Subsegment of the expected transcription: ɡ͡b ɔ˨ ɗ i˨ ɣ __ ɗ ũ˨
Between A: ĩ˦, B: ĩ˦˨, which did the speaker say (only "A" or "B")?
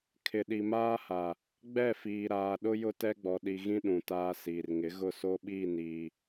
A